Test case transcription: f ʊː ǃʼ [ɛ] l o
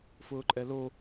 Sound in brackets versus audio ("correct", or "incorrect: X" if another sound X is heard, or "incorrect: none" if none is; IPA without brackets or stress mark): correct